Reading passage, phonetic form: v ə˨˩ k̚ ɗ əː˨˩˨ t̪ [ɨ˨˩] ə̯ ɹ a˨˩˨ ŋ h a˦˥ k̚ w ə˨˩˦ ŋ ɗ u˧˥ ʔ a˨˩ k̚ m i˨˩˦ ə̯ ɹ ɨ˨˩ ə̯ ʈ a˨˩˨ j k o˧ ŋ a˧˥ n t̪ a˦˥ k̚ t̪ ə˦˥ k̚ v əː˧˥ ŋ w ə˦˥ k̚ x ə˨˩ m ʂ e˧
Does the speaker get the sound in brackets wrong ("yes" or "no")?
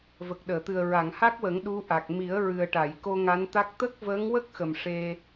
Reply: no